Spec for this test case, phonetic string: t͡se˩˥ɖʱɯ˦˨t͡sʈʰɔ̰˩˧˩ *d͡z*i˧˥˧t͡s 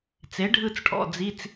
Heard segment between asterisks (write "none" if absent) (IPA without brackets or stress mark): d͡z